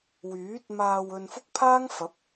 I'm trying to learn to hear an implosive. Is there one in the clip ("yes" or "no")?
no